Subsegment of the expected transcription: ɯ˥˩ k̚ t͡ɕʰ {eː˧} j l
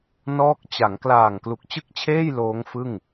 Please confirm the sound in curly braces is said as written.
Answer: no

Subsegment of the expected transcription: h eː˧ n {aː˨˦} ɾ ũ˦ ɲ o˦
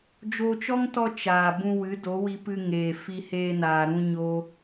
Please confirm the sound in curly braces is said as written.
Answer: no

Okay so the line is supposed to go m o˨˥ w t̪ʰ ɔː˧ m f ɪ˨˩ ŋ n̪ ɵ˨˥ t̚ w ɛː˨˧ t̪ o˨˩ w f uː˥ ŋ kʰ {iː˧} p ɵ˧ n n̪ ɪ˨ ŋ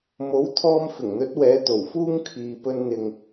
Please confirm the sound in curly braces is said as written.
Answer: no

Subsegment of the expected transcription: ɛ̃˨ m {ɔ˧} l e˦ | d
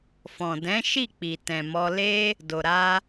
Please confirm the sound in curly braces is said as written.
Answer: yes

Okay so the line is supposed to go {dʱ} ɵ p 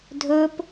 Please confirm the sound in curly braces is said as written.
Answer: yes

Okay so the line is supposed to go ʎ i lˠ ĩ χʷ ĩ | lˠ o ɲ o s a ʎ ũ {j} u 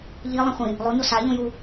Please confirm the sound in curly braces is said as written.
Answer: yes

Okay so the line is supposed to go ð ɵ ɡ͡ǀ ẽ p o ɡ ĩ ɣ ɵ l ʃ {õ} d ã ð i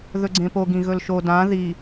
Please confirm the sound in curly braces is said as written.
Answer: no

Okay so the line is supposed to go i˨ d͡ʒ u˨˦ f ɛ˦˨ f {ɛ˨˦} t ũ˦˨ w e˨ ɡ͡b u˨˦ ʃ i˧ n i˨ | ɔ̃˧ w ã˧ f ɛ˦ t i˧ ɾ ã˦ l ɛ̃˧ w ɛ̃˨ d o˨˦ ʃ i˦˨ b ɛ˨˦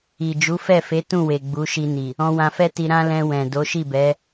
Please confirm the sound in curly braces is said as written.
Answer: no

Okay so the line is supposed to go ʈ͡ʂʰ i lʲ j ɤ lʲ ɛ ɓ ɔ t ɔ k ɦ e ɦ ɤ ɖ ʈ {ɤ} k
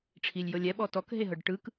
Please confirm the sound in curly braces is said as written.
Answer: no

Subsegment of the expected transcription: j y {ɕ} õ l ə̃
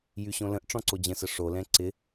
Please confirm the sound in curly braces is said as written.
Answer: yes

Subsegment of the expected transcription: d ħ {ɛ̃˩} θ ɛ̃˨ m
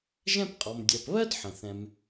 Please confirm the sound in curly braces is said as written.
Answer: no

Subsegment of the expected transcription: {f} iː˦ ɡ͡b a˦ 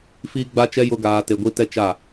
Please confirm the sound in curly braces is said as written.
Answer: yes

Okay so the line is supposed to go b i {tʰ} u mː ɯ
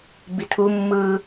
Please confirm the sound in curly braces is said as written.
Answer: yes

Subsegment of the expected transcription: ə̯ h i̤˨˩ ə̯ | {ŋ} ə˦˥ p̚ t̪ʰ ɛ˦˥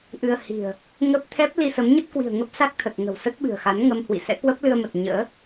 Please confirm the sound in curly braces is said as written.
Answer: yes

